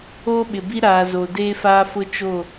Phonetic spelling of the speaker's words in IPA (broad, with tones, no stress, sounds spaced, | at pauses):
oː˦ ɓ ɪ˨ b i˦ ɾ aː˨ z o˨ d eː˦ f aː˦ f ʊ˦ t͡ʃ o˦˨